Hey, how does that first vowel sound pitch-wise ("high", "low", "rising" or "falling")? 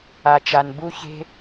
low